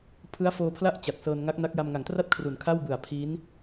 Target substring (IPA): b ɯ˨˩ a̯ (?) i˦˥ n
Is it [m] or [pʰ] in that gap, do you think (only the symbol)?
pʰ